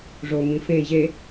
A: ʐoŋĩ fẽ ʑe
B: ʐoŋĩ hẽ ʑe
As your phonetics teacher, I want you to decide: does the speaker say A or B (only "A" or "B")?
A